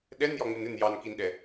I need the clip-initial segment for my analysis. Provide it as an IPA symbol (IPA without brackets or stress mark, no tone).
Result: ɗ